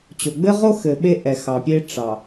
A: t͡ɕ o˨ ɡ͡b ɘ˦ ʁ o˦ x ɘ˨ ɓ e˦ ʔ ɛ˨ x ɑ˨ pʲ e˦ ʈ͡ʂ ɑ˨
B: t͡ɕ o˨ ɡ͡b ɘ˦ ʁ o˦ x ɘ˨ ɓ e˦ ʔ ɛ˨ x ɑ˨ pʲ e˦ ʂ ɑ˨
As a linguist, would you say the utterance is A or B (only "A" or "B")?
A